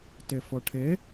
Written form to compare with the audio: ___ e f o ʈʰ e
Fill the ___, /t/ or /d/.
t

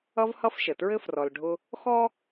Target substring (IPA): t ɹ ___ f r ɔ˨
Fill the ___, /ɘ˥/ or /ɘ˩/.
ɘ˥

